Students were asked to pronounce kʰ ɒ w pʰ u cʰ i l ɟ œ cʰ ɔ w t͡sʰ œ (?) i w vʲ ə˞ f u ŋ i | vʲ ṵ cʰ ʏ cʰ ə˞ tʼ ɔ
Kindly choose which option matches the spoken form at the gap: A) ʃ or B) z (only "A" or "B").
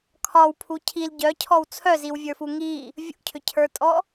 B